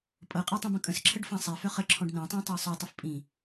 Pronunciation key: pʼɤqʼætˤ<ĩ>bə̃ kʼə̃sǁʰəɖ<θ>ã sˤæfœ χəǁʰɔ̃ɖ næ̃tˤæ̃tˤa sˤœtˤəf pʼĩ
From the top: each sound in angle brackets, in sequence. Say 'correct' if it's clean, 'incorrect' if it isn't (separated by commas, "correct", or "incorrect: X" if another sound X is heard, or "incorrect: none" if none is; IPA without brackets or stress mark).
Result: correct, incorrect: f